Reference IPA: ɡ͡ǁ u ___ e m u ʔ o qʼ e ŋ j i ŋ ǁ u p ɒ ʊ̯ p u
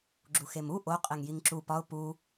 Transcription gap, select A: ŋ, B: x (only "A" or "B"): B